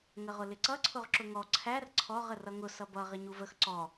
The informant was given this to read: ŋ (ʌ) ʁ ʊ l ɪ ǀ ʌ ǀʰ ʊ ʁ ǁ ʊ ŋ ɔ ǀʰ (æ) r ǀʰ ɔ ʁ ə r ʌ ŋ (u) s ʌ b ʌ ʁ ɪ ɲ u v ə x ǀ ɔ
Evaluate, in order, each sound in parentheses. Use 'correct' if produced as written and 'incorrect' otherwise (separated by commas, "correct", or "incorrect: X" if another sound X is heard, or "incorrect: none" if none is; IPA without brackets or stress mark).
incorrect: ə, correct, incorrect: ʊ